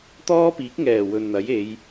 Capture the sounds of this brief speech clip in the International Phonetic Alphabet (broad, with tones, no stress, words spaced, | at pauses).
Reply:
t̪ɔː˥piː˨˥k̚ŋɛː˨˩ wɵ˨nn̪ɐ˨˥je˨˧j